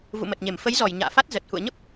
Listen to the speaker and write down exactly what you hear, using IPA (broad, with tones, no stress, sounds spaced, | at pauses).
v ṵ˧˨ m ə˨˩ t̚ ɲ e˧˩ m f ə˨˦ j z ɔ˧˩ j ɲ a̰ː˧˨ f a˦˥ t̚ z ə˨˩ t̚ h ṵ˧˨ ə̯ ɲ ə˦˥ p̚